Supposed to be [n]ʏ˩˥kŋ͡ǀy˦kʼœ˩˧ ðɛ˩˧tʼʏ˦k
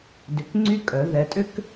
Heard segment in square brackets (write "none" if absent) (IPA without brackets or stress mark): d